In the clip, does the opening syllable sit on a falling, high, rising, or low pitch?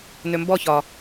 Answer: low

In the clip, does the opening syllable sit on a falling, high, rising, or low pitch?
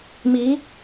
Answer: rising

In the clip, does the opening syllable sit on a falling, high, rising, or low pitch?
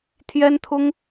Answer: high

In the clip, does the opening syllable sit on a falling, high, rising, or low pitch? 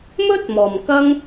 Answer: high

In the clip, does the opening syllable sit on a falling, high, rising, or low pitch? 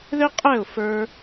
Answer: high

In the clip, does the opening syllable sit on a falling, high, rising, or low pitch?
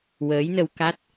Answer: rising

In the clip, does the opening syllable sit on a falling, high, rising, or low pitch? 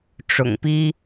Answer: low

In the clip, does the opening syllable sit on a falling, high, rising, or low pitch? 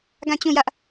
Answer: falling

